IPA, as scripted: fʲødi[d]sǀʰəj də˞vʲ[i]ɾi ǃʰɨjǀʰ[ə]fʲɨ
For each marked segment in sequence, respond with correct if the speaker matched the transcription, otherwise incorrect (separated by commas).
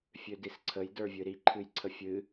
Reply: incorrect, incorrect, correct